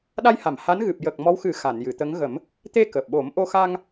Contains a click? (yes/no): no